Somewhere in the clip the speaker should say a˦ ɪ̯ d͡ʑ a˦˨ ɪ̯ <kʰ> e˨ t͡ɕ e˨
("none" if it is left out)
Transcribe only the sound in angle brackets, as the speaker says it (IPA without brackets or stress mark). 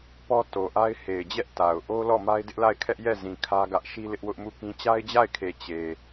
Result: kʰ